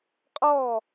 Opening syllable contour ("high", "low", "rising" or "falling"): falling